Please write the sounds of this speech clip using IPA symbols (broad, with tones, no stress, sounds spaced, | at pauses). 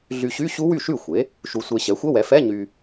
ɮ y˧ ɕ y˧˥˧ ɕ u˦˥ w y˥˩ ʃ y˥˩ xʷ e˩˥ | ʃ u˧ sʷ e˧ ɕ ɛ˩˥ xʷ ə˧˥˧ w ɛ˩˥ f ɛ˧˥˧ ɲ y˧